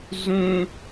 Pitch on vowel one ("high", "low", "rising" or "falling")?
high